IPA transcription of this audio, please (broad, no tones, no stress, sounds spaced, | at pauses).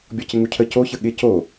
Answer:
bʲ ɔ c ɪ ŋ u cʰ ə c o ç ə ɠ ɪ c o